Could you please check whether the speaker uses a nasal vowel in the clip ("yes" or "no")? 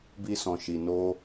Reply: yes